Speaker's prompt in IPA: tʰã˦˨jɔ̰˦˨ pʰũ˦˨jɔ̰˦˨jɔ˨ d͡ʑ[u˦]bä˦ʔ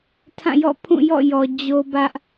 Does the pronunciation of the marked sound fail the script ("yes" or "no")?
yes